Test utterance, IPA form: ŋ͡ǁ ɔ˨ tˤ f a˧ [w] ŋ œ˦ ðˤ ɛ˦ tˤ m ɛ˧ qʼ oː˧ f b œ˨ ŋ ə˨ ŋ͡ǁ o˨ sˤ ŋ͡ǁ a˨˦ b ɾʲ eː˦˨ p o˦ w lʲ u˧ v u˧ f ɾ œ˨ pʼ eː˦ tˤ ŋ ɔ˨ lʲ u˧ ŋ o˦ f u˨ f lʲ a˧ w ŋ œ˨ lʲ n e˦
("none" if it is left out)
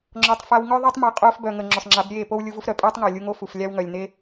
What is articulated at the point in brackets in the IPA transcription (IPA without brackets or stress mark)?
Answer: w